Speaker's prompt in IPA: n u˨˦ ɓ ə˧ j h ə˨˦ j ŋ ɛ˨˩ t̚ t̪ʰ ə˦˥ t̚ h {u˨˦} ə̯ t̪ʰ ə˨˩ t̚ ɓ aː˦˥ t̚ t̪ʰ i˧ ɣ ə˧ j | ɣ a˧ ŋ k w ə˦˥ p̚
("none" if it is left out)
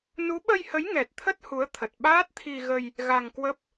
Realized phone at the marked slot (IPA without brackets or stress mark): u˨˦